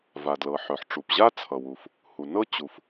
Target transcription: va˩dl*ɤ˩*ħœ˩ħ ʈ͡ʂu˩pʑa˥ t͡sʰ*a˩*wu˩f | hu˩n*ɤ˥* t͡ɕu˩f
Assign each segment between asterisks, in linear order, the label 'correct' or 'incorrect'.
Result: correct, incorrect, correct

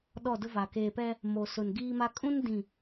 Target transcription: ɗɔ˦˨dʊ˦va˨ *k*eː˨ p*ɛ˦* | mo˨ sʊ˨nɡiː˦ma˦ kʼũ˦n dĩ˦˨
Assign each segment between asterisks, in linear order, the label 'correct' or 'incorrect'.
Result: correct, correct

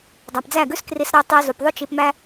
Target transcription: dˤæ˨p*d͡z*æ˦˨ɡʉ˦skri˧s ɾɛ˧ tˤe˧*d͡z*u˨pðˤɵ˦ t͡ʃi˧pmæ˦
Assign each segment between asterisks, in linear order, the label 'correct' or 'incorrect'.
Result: correct, incorrect

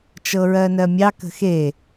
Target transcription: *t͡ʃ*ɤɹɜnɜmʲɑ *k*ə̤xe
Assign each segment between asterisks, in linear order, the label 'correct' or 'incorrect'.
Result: correct, correct

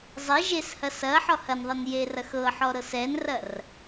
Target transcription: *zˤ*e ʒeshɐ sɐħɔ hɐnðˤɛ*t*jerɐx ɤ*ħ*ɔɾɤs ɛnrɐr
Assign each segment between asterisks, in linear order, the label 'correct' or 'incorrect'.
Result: correct, incorrect, correct

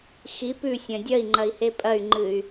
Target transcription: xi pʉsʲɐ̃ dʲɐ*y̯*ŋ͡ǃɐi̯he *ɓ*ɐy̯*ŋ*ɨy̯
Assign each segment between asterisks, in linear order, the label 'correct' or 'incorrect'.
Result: incorrect, incorrect, incorrect

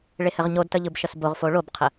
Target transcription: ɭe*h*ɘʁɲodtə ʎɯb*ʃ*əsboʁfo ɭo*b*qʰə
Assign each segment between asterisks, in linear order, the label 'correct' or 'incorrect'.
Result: correct, correct, correct

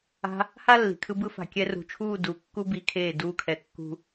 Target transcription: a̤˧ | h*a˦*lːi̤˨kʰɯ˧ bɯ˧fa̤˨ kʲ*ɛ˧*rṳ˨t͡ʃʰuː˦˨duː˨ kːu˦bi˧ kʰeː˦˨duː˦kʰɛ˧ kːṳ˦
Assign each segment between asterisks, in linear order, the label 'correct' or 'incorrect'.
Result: correct, correct

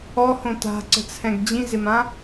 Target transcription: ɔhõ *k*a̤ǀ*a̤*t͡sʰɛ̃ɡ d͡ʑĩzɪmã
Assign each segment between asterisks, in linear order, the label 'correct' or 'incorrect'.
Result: incorrect, incorrect

